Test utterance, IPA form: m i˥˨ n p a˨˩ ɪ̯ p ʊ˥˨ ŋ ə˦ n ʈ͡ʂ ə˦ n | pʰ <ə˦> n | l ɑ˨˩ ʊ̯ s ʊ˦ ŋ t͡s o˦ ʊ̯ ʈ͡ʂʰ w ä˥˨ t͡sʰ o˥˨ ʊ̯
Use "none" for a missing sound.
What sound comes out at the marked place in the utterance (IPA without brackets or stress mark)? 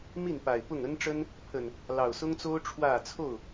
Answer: ə˨˩